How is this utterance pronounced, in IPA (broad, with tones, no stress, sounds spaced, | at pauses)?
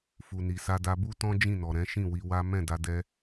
f u˨ n i˨ s a˧ d a˧ b u˦ t ɔ̃˦ d͡ʒ ĩ˦˨ n ɔ˨ ɾ ɛ̃˨˦ ʃ ĩ˦˨ w i˧ w a˦ m ɛ̃˦˨ d a˧ d ɛ˦